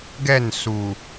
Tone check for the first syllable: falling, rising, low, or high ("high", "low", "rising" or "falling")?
falling